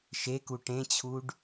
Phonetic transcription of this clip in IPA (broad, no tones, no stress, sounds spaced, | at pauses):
ʃ e k u ʈ ẽ t͡ɕʰ u ɖ